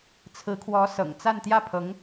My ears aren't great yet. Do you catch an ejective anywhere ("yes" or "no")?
no